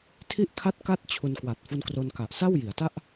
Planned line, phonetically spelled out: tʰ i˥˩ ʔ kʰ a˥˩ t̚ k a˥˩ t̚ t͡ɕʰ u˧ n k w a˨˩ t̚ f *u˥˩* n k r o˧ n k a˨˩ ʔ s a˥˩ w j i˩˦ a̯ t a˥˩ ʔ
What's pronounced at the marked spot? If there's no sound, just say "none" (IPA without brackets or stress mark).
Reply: u˧